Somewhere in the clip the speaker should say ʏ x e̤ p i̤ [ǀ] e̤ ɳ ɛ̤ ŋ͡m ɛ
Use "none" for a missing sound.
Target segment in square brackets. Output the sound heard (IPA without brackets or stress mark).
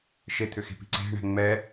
ǀ